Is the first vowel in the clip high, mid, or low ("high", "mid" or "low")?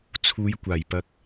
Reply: high